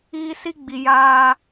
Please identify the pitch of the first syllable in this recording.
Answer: high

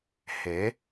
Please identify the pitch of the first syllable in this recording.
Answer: rising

